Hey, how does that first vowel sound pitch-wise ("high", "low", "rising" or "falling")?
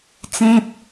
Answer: low